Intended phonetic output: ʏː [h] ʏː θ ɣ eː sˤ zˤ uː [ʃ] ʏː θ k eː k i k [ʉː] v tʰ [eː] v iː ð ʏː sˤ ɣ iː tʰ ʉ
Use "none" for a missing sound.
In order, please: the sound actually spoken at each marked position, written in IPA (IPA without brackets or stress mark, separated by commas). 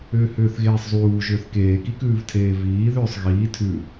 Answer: h, ʒ, ʉː, eː